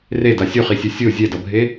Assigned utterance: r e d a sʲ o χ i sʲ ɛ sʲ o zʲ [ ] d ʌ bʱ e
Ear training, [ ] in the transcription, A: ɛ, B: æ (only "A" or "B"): A